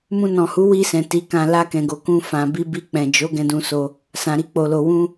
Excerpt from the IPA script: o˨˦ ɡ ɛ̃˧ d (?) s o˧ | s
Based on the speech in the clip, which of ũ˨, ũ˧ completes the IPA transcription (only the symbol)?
ũ˧